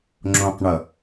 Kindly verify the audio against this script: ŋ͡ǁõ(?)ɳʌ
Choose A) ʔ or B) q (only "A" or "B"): B